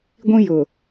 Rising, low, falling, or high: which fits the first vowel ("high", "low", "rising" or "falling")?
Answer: high